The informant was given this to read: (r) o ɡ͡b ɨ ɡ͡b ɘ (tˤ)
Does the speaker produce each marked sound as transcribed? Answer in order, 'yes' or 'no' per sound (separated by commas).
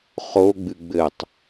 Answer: no, yes